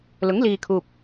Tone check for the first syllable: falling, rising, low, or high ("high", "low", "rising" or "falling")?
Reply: rising